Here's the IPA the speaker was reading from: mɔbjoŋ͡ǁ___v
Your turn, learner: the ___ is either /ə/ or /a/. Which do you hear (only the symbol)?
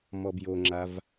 a